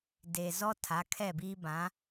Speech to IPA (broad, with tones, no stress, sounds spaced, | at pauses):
d e˨ z ɔ˦ tʰ a˨˦ kʰ ɛ˦˨ b iː˦ b ã˨˦